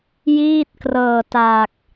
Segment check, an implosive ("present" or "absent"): absent